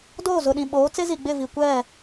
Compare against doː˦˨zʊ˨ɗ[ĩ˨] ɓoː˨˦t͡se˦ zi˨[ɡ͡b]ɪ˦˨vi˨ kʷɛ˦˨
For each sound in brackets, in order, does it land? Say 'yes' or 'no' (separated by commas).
yes, yes